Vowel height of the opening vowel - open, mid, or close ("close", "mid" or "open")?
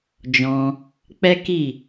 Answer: mid